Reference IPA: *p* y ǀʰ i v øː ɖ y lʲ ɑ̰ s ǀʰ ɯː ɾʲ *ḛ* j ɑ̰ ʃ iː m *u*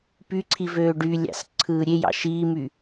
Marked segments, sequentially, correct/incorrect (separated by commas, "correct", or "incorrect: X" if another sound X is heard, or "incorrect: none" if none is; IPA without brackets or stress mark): correct, incorrect: e, incorrect: y